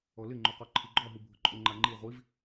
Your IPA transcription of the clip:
ɔ l ɪ ŋ͡ǃ o q ɔ ǃʰ i ɡ͡ǃ ɔ ɦ u bʱ ʊ ǃʼ ʊ ŋ͡ǃ a ŋ͡ǃ i ʁʷ i v

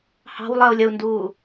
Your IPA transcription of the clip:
h ɑ̤ w lˠ ɜ u̯ lʲ ə u̯ n d uː

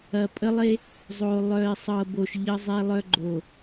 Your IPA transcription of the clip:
ɐ˨ pʼ ə˦ lˠ e˦ | zˤ o˨ lˠ œ˨ e̯ sˤ ɤ˨ b o˨ ʃ ʎ ə˦ zˤ e˦ lˠ œ˦ ɡ͡ǃ o˨

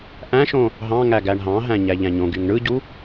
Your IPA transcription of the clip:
ʔ æ̃ ʃ õ | ɦ ɑ̃ ŋ æ ɡ æ ɳ ɦ ɑ̃ ɦ æ̃ ɲ æ ʎ æ̃ ɲ õ ɡ y ŋ ɳ ɯ ɟ u

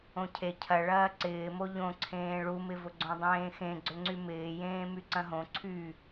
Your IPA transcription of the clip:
õ cʰ e cʰ ɐ ɭ ɐː ǀ ɪː m o ʎ õ ǀʰ ẽː ɭ u m ɪ v ʊ ɡ͡ǀ õ dˤ ẽː x ẽ ɡ͡ǀ ʏ ŋ͡ǀ y m ɪː j ẽː m y ǀ ɐ̃ ɦ õ ǀʰ y

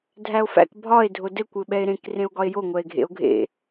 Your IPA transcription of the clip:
dʱ æ o̯ f æ̰ k bʱ ɒ e̯ dʱ o d ɘ kʷ ɘ ɓ ɛ e̯ ɾ ẽ k r ẽ o̯ ɡ ɒ e̯ j o ŋʷ ɛ e̯ ɡʱ ḛ o̯ ɡʱ ḛ

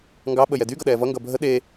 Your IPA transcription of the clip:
ŋ ɡ ɑ ɓ ə j ɛ d y ɡ ʌ ɗ ɛː v ʌ ŋ ɡ ʌ bʱ ə ɗ e

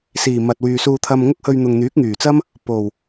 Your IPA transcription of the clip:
s iː˨˩ m ɐ˨ t̚ w yː˨ s uː˧ t̪ʰ ɐ˧ m ŋ ʊ˥ k̚ h ɵ˧ ɥ n̪ ʊ˨ ŋ n̪ yː˨˥ k̚ ŋ yː˨˩ t͡s ɐ˥ m | p o˨˩ w

